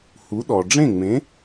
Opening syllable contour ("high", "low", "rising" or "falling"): rising